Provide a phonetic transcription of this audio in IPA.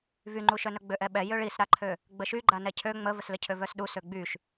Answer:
v y ŋ͡ǃ u ʃ œ n œ ɡ͡b ø ʔ ɛ ɓ ɛ j ø ɭ i s ɾ a ǃʰ ø | ɡ͡b ə ʃ y ɡ͡ǃ a n ɛ cʰ ø ŋ͡m ə v ə s l ə cʰ ø v œ s ɗ u s ø ɡ͡b y ʃ

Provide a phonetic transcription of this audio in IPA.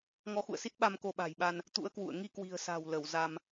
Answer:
ŋ ɔ˨˦ x ṵ˧˨ ə̯ s i˦˥ t̚ ɓ a˧ m k o˧ ɓ a̤˨˩ j ɓ a˧ n | t̪ ṵ˧˥ ə̯ k w ṵ˧˨ ə̯ ŋ i˧ k w i̤˨˩ ə̯ s a̤˨˩ w l ə˧˩ w z a˧ m

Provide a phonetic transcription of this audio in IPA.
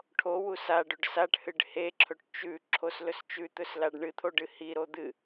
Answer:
ʈʰ o w u s a ɖ ɵ ɖ s a ʈ h ɨ ɖ h e ǁʰ ɵ ʈ t͡ʃ ʉ ǁʰ o s l ɵ s t͡ʃ ʉ t̪ ɵ s l a ɖ ɳ ɨ t̪ʰ o ɖ ɨ h i ɾ o d̪ ɨ

